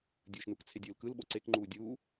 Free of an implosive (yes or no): no